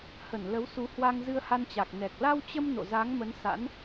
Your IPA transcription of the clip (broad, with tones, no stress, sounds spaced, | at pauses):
h ə˧˩ n l ə˨˦ w s u˨˦ h w a˧ ŋ z ɨ˧ ə̯ h a˧ n t͡ɕ a˨˩ k̚ n ɛ˨˩ k̚ l a˧ w t͡ɕ ə˧ m n o̰˧˨ z a˨˦ ŋ m ə˨˦ n s a̰˧˥ n